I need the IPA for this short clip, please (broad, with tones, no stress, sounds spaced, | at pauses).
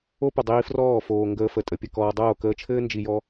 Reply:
o˦ p ə˨ dˤ iː˧ f r ɔː˦˨ f oː˨ ŋ ɡ əː˧ f ə˨ tʼ ə˨ pʲ ɘ˨ k ɔː˨ dˤ oː˦˨ k əː˧ t͡ʃʰ ɘː˦ n d͡ʒ i˨ j ɔ˧